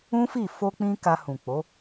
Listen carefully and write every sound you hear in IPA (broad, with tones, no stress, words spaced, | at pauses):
ũ˦fi˦˨ fo˧k͡pĩ˧ ka˧hũ˨k͡po˨˦